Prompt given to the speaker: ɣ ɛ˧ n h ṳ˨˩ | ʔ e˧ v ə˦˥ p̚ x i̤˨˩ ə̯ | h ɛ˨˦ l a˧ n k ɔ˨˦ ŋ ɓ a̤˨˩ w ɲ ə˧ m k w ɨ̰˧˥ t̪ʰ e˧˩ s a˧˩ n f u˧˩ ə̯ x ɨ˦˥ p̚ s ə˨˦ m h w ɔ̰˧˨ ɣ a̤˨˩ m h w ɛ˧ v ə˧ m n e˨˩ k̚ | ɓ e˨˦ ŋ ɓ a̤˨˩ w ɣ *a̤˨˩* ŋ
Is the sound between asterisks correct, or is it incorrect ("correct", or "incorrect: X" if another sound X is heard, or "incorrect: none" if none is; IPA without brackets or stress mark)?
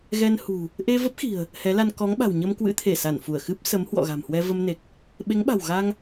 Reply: incorrect: a˧